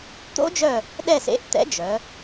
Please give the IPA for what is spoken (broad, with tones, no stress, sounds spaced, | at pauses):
t̪ o̰˦˥ d͡ʒ œ˦˨ | ɗ ɛ˦˨ s ḛ˨˥ ʔ t̪ ɛ̰˨˥ d͡ʒ œ˩˧